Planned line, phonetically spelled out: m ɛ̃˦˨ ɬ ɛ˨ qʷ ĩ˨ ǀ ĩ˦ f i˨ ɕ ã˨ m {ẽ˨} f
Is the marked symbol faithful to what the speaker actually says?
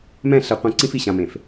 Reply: yes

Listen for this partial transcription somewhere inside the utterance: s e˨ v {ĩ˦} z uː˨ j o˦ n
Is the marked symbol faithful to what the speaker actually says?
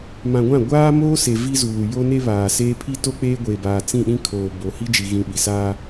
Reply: no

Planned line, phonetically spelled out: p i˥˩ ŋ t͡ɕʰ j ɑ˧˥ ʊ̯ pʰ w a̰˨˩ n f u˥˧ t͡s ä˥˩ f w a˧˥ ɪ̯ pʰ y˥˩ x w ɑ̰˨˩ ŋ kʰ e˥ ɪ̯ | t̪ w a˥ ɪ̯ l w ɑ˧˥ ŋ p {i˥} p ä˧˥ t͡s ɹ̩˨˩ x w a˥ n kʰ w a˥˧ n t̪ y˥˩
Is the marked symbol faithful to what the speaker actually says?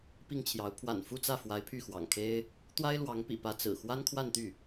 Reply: no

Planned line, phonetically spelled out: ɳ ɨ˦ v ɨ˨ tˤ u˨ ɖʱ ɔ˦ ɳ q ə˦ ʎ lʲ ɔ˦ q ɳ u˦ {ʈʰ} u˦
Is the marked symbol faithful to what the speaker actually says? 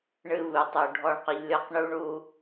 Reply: no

